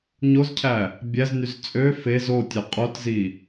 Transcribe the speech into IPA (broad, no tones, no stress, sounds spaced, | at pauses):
ɲ o z cʰ æ | bʲ æ z n y z t͡sʼ ø f e z o tʲ ø qʼ o t z i